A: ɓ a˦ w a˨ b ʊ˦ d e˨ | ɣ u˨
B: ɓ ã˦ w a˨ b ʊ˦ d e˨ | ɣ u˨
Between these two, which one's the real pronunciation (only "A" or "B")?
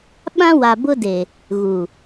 B